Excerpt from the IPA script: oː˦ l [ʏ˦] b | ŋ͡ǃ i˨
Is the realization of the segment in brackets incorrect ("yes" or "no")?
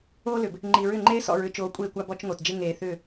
yes